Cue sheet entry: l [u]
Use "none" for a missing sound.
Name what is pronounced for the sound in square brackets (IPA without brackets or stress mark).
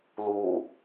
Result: u